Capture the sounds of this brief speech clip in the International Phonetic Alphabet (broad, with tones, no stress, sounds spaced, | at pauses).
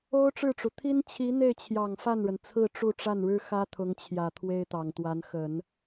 o˥ ʊ̯ ʈ͡ʂ ɻ̩˥˩ ʈ͡ʂ u˩ t̪ʰ i˥ n t͡ɕʰ i˧˥ n̪ e˥˩ ɪ̯ t͡ɕʰ j ɑ˨˩ ŋ f a˥˩ n ɻ ə˩ n t͡sʰ ɹ̩˥˧ ʈ͡ʂ u˥˧ ʈ͡ʂ a˥˩ n ɻ ɻ̩˥ x ä˥ t̪ʰ ʊ˧˥ ŋ t͡ɕʰ j ä˨˩ t̪ʰ w e˥ ɪ̯ t̪ ɑ˨˩ ŋ t̪ w a˧˥ n x ə˨˩˦ n